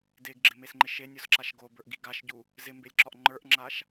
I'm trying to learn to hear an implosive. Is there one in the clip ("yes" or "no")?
no